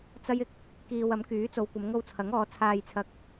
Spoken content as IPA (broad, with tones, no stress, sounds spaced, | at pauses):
t͡s ɐ˥ j ɪ˨ k̚ | k iː˧ w ɐ˨˥ m k yː˨˥ t͡s o˨˧ w kʷ ɐ˨˧ m ŋ o˧ w t͡sʰ ɐ˨˥ ŋ ɔː˨˧ t͡sʰ aː˧ j t͡sʰ ɐ˧ k̚